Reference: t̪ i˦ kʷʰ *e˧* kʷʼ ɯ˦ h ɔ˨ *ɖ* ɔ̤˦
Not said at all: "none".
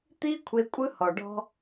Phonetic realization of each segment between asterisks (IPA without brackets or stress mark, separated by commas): e˧, ɖ